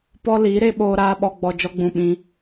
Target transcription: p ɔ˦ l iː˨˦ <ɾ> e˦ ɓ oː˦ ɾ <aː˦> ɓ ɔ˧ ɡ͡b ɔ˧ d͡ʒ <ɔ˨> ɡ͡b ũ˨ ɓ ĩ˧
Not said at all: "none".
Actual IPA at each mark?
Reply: ɾ, aː˦, ɔ˧

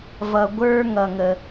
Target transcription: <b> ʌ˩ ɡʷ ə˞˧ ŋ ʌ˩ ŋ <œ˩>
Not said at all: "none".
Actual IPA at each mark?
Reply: v, ə˩

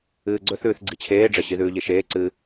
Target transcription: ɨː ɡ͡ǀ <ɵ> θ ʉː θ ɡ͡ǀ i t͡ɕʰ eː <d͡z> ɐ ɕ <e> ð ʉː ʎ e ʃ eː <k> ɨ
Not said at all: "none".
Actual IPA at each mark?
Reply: ɵ, ɖ͡ʐ, i, ǀ

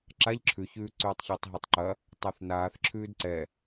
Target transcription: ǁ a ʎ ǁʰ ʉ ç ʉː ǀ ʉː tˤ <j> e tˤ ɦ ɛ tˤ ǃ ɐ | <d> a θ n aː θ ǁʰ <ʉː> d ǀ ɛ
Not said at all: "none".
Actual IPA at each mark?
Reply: ç, tˤ, ʉː

